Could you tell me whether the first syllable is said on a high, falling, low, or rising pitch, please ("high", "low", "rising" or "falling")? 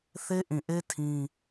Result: high